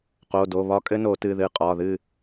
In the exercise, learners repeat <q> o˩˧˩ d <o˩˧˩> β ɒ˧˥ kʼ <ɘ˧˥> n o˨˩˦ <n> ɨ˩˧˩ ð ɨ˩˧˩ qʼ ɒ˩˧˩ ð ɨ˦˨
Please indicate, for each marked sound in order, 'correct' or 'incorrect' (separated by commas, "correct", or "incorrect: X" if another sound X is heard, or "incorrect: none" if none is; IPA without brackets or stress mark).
correct, correct, correct, incorrect: t